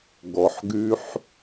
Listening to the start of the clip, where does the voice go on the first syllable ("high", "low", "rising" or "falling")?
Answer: low